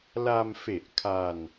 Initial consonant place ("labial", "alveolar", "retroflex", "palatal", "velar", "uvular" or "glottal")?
alveolar